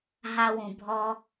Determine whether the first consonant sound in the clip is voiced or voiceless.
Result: voiced